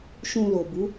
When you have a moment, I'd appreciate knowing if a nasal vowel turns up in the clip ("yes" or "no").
yes